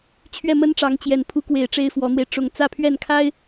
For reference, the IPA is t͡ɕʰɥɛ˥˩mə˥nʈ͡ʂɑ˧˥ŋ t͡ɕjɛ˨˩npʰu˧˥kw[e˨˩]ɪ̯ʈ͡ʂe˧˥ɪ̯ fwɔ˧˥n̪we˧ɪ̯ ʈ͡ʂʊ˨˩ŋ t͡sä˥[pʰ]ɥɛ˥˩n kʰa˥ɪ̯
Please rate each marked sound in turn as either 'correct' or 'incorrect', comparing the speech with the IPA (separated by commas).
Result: correct, correct